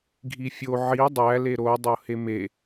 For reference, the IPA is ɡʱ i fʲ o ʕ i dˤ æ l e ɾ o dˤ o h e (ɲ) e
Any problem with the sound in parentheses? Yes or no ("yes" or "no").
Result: yes